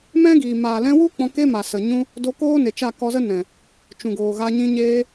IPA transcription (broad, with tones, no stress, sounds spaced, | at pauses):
m ɛ̃˦ ɡ iː˨ m aː˨ l ɛ̃˧ w u˦ k͡p ɔ̃˧ k e˦ m a˨ s ə˨ ɲ ũ˧ | d o˧ k oː˦ n e˨ t͡ʃ a˦˨ k ɔ˧ z ə˦ n ɛ̃˨ | t͡ʃ ũ˨ ɡ oː˨ ɣ a˧ ɲ ĩ˧ ɲ eː˧